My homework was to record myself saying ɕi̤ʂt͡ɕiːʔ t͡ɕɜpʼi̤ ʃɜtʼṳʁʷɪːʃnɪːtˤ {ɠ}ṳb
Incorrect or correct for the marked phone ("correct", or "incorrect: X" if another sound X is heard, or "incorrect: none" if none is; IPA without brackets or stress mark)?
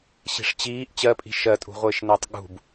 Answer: correct